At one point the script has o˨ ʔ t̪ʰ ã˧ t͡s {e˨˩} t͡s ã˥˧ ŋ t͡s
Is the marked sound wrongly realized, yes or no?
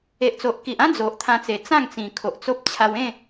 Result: no